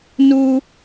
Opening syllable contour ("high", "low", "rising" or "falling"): low